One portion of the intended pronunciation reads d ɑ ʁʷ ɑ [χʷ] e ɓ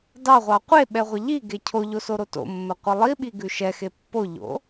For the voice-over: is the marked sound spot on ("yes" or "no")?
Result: no